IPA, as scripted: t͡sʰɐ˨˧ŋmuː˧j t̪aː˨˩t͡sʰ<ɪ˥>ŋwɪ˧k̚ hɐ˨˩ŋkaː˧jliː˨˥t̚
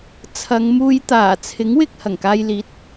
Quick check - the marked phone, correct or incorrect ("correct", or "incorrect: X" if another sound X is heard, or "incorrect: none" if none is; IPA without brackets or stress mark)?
incorrect: ɪ˨˥